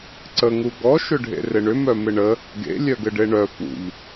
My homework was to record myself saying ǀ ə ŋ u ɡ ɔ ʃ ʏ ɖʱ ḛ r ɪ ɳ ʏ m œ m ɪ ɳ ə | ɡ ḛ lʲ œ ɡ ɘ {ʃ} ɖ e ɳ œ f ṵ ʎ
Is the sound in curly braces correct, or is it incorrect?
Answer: incorrect